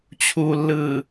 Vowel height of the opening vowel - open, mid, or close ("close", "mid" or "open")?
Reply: close